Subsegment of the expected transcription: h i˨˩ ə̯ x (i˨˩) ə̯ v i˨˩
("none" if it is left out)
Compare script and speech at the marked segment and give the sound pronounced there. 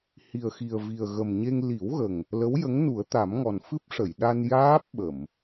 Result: i˨˩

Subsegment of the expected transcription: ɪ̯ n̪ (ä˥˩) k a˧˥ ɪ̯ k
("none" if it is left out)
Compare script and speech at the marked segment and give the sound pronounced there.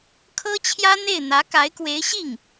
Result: ä˧˥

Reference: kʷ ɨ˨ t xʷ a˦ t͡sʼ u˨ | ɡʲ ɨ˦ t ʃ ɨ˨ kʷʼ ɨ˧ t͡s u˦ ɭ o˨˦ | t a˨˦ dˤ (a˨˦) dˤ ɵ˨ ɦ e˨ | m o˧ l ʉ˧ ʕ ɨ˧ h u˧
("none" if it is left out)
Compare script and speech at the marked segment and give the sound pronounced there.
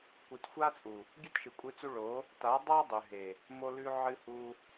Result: a˦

